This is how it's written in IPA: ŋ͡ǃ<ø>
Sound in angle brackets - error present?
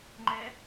yes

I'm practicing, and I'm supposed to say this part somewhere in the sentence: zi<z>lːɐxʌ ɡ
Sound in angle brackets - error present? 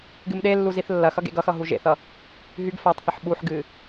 yes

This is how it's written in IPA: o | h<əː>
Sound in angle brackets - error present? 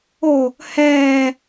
yes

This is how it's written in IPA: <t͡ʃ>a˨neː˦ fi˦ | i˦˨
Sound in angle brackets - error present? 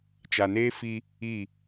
no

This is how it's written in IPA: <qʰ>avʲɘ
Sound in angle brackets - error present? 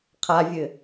no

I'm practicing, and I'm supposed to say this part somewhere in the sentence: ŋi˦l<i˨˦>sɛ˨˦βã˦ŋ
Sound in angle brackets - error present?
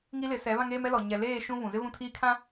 yes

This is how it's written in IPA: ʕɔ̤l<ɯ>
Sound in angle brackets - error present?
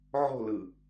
no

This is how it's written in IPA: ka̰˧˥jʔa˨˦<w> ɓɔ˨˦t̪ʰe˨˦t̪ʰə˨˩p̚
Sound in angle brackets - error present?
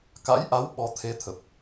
no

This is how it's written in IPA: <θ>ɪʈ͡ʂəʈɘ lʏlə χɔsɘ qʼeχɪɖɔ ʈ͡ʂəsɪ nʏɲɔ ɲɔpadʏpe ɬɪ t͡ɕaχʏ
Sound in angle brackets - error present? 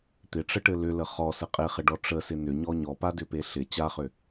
yes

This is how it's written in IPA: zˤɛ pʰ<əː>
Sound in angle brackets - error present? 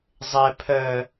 no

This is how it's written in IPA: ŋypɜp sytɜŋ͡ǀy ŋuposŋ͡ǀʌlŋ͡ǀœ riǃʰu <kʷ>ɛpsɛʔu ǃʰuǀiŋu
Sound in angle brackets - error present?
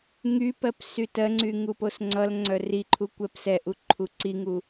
no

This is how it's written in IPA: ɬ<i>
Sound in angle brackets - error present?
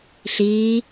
yes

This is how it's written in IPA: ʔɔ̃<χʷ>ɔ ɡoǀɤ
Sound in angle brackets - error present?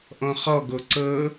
yes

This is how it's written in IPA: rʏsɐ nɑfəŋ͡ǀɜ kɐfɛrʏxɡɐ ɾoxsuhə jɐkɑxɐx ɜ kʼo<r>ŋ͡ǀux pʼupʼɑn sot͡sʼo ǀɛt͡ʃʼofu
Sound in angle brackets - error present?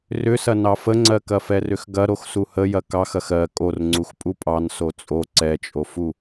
no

